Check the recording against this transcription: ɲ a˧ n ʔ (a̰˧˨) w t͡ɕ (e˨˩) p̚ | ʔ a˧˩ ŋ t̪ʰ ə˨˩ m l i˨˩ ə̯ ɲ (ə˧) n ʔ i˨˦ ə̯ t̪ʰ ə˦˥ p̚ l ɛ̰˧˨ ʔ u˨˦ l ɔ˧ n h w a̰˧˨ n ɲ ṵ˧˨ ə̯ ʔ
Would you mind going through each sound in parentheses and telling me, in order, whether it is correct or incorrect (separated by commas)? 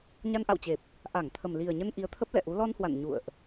correct, correct, correct